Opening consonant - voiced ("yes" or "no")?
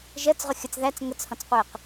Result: yes